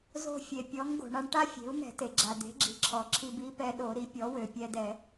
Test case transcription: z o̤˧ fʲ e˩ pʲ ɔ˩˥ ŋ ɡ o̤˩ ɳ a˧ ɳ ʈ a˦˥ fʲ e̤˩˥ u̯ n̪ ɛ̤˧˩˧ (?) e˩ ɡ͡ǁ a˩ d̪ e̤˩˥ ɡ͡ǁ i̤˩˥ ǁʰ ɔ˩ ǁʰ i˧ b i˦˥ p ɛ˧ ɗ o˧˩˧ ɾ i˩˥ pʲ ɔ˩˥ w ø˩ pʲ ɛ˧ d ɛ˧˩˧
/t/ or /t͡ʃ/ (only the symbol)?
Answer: t